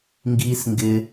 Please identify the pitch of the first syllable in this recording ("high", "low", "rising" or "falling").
high